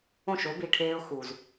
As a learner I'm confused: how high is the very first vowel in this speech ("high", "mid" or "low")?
mid